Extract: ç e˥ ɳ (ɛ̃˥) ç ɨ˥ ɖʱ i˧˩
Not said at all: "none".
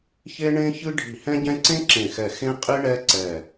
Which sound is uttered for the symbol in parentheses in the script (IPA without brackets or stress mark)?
ẽ˥